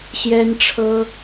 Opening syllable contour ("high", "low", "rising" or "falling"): high